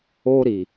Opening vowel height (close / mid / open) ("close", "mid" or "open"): mid